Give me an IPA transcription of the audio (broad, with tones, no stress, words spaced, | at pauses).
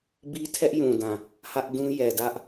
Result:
bi˦tʰɛ˦ʔjũ˨dã˨ | hä˦ʔdũ˦ jɛ˨dä˦ʔ